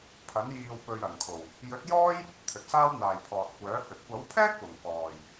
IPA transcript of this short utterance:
pʰɐ˨˥n jiː˨wpɵ˨ɥ ɐ˨˩nkʰo˨˩w | jɵ˨˥t̚jɔː˥j | t̪ʰɵ˨t̚saː˥wn̪aː˨j pʰɔː˨t̚kʷœː˨˥ hɵ˨t̚ kʷɐ˨˥wpʰɛː˥k̚wʊ˨˩ŋ kɔː˨˩j

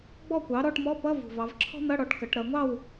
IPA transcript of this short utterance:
ɡ͡bɔ˥˨kʷɑ˩˥ ɾɔ˧˥˧ʈmɔ˧˥˧pʌ˧˥˧vṳ˨˩ vɑ˩˧vǁʰɔ̤˥n̪ʌ˧˥˧ɽɔ˩˥ʈ kʌ˩˧ʈ ɾʌ˩˧ŋʷɑ˥˨w

